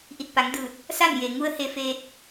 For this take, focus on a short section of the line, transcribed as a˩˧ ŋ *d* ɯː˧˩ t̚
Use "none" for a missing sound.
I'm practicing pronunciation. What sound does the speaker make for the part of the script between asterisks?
d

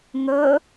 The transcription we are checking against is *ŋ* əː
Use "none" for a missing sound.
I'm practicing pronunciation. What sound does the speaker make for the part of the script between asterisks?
ŋ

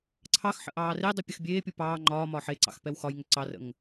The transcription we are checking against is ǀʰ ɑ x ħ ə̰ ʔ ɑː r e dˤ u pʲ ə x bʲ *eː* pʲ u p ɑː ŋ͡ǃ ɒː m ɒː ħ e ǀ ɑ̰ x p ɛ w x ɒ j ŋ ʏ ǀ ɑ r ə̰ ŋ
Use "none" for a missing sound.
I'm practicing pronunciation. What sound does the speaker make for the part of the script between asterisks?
eː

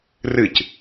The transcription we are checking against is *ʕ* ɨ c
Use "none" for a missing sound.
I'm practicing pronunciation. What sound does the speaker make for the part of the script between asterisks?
r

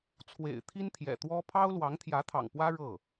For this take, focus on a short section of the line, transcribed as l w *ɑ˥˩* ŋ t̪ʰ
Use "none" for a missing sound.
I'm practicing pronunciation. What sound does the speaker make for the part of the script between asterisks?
ɑ˧˥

